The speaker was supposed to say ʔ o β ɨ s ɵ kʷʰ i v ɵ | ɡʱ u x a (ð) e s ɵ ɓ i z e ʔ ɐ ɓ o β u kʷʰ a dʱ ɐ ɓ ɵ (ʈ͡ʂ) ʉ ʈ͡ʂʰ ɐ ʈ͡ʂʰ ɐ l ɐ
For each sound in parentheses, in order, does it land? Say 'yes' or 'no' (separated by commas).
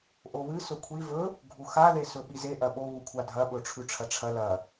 yes, no